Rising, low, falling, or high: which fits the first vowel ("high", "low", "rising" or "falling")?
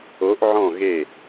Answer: rising